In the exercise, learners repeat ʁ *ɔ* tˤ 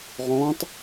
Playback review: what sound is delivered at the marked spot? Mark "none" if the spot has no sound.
ɔ̃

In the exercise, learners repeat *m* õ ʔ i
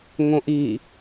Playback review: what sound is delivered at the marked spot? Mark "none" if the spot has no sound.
ŋ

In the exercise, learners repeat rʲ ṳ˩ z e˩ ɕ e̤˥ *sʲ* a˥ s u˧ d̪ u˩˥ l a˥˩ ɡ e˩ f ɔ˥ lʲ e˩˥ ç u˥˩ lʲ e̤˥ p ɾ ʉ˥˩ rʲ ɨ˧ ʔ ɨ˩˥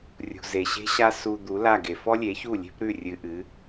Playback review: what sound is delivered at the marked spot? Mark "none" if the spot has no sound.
ɕ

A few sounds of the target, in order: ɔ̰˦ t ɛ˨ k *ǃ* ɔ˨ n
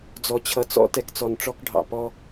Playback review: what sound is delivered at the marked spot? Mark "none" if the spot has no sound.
t͡s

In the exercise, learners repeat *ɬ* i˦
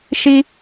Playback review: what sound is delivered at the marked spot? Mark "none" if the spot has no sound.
ʃ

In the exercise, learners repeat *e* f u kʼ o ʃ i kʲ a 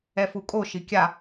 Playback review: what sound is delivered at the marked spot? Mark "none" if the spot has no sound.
ɛ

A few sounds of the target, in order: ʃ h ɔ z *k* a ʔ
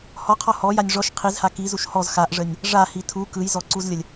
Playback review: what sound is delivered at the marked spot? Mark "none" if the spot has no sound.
x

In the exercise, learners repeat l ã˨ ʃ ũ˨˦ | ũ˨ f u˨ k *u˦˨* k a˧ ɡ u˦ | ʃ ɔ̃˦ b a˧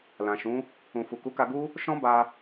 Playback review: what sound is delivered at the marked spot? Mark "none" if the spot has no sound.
u˨˦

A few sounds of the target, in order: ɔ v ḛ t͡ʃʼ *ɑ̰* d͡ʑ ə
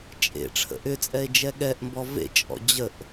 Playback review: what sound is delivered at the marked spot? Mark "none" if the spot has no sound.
ɔ̰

